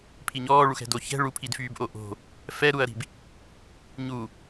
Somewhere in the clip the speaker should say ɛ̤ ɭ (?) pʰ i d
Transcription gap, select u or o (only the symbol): u